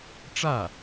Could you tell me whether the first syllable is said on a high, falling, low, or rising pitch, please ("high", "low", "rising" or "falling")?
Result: falling